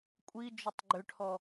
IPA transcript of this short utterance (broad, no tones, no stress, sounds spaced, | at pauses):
kʷʼ i d͡ʒ ʏ tˤ ɡ͡ǃ ʏ ʈʰ ɔ